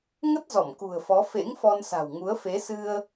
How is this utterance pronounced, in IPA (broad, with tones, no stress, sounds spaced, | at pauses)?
ŋ ə˦˥ t̚ z ɔ˧˩ m k ṳ˨˩ ə̯ f ɔ˨˦ f ḛ˧˥ ŋ f ɔ˧ n s a̤˨˩ w ŋ u˨˦ ə̯ f e˨˦ s ɨ˧ ə̯